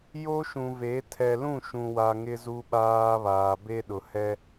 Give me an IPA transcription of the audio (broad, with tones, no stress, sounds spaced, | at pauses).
j o˦ ʃ ũ˨ v e˨˦ tʰ ɛ˨ l ũ˦˨ ʃ ũ˨ w a˨ ŋ ɪ˦ z u˦ ɓ aː˦ β aː˨ b e˦ ɗ ʊ˨ h ɛ˦